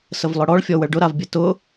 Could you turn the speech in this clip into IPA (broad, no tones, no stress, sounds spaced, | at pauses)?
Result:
s ə v lˠ ʊ ɽ ɔ ɭ fʲ ɔ w ə ɭ ɖ ʊ ɾ a v bʲ ɘ t ʊ